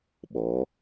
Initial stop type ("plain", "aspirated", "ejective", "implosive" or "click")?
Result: implosive